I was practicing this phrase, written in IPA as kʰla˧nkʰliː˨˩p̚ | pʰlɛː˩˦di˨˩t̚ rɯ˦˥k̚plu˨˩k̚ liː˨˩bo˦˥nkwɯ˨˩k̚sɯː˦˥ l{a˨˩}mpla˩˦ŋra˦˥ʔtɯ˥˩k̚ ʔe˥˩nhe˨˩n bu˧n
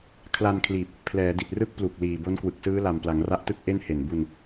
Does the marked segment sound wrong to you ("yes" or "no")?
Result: no